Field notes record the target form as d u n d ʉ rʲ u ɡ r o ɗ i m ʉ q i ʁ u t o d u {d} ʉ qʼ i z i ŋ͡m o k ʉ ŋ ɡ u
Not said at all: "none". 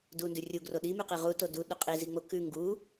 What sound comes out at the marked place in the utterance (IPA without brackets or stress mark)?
ɗ